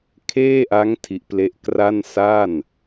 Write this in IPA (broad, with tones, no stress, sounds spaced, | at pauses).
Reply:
kʰ eː˥˩ ʔ a˦˥ ŋ tʰ i˦˥ ʔ p l e˥˩ ʔ k r a˥˩ n s a˥˩ n